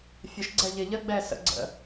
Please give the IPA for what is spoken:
fʲ ə ʃ ɡ͡ǀ ɛ ʎ ɪ ʎ ə ɡ͡b ɛ s ə̰ ɡ͡ǀ ə̰

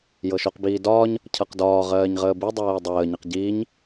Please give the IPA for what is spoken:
j ɤ ʃ o q b iː d ɒː ɲ | cʰ ɤ q d ɒː ʁ ɜː ɲ ʁ əː b i dˤ ɜː dˤ əː ɲ ə q ɟ iː ɲ

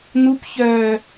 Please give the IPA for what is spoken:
n̪ u p ç œː

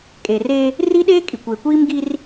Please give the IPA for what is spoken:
kʼ e˨ r eː˦ | r i˦ ɗ eː˦ kʼ i˨ kʷ e˨ kʷ iː˦ m ɡ i˦ r

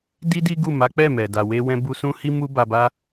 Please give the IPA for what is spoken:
d i˦ d i˦ ɡ u˦˨ m a˨˦ k͡p ɛ˦˨ m ɛ˨ d a˧ w e˦ w ɛ̃˦ b u˧ s ũ˦ h i˦ m u˦ b a˧ b a˦

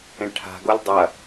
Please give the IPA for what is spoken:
ẽ ʈʰ a̤ ɡ o lʲ dˤ ɐ

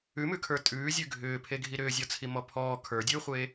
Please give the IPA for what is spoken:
ʉ m ʉ kʰ ə˞ tʼ ʉː zʲ ʉ ɡʱ ʏː pʰ e ɡʱ i ɾ ʏː zʲ ɔ t͡sʰ i m ɔ pʰ ɔː kʰ ə˞ dʲ ʉː χʷ eː

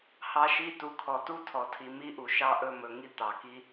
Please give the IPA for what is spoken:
h ɑ˦ ʃ i˦ t u˨ kʰ ɔ˨ t u˦ tʰ ɔ˨ tʰ i˨ m i˦ ʔ u˨ ʃ ɑ˦ ʔ ɵ˦˨ m ɵ˨ ŋ i˦ t̪ ɑ˨ k i˦

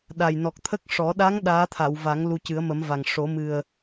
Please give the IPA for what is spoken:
ɗ a˨˩ j n ɔ˨˩ k̚ t̪ʰ ə˦˥ k̚ ʂ ɔ˨˩˦ ɗ a˧˥ ŋ ɗ aː˧˥ t̪ʰ a˨˩˨ w v a˨˩˦ ŋ l u˧ c ɨ˨˩˦ ə̯ m ə˨˩˦ m v a˨˩ ŋ ʂ o˨˩˦ m ɨ˨˩ ə̯

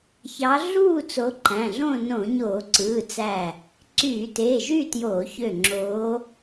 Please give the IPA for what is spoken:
ç ɑ˨˦ ɮ uː˥˨ t͡s o˨˦ ǃ æ̃˩˧˩ ɮ õ˥˨ n õ˧˩˧ ɲ oː˧˩˧ ǀ ɯː˩˧˩ t͡s æ˧˩ | ǀ yː˧˩˧ t eː˩˧˩ ʒ y˥˨ t j oː˧˩˧ ç ø˧˩ ŋ͡ǁ oː˨˦

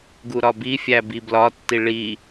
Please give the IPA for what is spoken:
ɡ u ɾ ɒ b i fʲ æ b i b l ɒ tː i ɭ i

